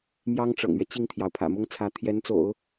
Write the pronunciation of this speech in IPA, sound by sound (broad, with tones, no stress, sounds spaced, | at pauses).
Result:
m j ɑ˥ ŋ ʈ͡ʂ ɤ̰˨˩ ŋ ɥ ɛ˦ t͡ɕ i˥˩ ŋ t̪ʰ j ɑ˩ ʊ̯ pʰ ä̰˨˩ m ʊ˥ ŋ t͡sʰ ä˧˥ t̪ʰ j ɛ˧˥ n t͡s o̰˨˩˦ ʊ̯